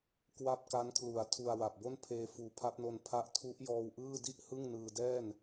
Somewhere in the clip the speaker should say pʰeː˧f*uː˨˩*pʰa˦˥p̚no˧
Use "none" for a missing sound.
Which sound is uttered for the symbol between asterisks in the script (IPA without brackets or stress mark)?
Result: uː˨˩